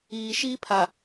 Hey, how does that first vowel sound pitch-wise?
low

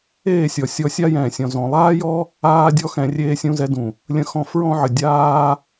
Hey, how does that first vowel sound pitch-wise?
falling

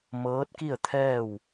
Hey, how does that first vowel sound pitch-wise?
rising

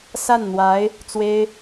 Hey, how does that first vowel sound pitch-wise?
falling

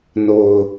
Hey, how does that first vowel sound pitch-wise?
low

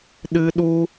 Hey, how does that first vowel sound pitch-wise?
high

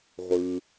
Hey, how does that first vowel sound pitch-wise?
low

